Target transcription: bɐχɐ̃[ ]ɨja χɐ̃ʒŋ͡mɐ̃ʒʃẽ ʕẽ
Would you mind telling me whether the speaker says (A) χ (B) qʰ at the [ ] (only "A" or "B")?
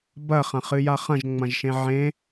A